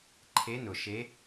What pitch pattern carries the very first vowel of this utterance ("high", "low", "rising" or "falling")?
rising